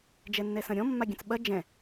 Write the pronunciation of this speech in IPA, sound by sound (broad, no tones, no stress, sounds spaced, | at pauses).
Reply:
d͡ʒ ɛ nː ɛ s ɐ̃ ɾʲ ɔ̃ mː a ɡʲ ɐ̃ t͡s ɓ ɐ d͡ʒ ɛ̃